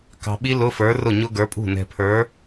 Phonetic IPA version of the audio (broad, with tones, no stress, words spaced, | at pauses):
kɑ̤˨ɓi˦˥ lʊ˧˥˧fə˞˨˥rʊ˥˩ ɲʊ˦˥ɡə˞˨˥pʼṳ˥˩ nɛ̤˨pʰə˞˨˥